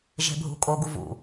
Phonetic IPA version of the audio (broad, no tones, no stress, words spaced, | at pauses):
ʒe̤bʱṳkʼo ɡuvṵ